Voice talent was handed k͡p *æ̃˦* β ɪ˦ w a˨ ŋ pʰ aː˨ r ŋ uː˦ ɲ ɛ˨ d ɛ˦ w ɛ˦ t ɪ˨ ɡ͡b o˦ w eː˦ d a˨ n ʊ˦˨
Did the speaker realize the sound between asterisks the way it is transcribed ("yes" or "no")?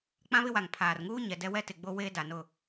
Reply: no